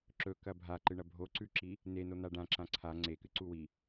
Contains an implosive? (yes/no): no